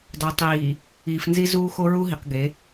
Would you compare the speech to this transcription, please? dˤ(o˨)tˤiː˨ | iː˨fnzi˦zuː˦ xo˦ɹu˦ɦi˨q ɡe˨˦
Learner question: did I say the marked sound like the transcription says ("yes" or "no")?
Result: yes